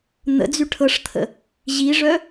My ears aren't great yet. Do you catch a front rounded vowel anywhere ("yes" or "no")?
yes